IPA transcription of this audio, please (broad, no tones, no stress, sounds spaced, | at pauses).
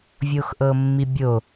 vʲ o x ʔ ɤ mː i bʲ o